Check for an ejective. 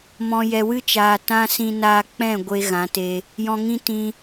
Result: absent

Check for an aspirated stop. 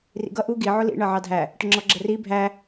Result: absent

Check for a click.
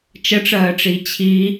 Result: absent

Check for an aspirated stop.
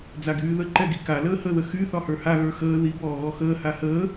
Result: absent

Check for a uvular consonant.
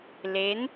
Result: absent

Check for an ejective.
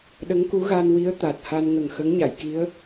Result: absent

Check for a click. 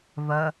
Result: absent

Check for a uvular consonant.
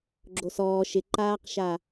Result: present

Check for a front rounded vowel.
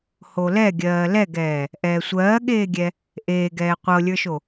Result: absent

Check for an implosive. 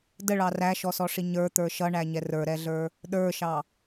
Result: present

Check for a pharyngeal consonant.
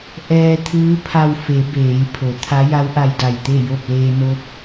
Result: absent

